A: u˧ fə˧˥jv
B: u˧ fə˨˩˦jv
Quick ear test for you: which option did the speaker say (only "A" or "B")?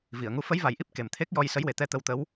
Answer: A